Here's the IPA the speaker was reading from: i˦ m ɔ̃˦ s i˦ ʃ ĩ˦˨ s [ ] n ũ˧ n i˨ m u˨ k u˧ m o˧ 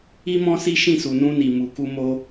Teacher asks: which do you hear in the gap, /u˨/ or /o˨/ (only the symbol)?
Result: u˨